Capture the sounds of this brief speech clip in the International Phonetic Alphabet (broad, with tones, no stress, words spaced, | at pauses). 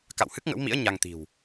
ka̰˧˨whɨ˦˥k̚ŋə̰˧˥wmḭ˧˥ə̯ ɲa˧ŋt̪i̤˨˩w